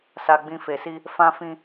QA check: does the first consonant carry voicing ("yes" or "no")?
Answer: no